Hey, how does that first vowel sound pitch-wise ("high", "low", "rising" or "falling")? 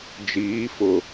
rising